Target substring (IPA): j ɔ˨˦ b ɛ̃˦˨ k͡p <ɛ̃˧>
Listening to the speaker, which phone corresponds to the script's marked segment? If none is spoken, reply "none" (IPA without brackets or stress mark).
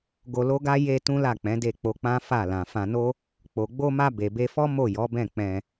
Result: ɛ̃˧